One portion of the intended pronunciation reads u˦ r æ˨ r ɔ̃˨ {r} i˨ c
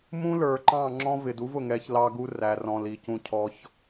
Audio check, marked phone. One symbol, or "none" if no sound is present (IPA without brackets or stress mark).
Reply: l